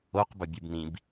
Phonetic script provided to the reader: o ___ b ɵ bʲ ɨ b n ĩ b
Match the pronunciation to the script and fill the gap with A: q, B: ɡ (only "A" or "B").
A